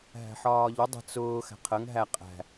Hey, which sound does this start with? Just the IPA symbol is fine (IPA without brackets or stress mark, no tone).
ɦ